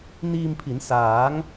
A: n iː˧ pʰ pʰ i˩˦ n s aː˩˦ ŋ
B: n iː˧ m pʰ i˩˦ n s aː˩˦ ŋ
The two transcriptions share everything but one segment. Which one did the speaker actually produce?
B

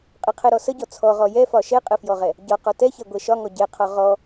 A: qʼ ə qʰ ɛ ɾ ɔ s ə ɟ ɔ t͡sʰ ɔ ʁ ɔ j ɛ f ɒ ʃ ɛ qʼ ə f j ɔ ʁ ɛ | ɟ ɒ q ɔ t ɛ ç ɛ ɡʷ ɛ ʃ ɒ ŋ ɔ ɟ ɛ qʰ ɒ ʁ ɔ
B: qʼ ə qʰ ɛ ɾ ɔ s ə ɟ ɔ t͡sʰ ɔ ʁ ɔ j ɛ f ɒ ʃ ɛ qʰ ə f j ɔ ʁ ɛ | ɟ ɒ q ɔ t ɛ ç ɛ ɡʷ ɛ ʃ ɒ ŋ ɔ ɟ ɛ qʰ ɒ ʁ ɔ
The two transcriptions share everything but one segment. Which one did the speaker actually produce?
A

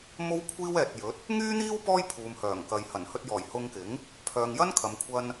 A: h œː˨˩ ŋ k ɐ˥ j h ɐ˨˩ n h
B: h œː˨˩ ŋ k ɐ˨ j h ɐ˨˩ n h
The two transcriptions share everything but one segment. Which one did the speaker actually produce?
B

